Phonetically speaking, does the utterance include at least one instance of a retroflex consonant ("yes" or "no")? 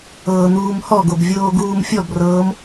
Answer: no